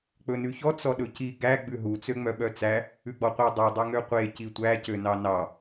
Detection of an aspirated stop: absent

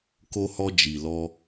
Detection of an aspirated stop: absent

